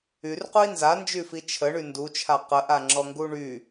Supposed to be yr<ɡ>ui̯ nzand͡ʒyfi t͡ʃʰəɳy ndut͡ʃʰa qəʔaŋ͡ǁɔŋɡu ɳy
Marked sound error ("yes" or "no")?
yes